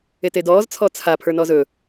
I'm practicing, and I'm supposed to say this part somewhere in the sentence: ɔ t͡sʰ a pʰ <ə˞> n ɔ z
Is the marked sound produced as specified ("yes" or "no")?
yes